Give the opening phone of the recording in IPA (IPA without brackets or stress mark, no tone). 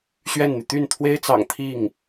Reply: ɕ